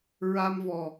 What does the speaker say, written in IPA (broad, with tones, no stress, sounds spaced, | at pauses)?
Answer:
ɹ a˧ m v ɔ˨˩